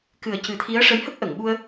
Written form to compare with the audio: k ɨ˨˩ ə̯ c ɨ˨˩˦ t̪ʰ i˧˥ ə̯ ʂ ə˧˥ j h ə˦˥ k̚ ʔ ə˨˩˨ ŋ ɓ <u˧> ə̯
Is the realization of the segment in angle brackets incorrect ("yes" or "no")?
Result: no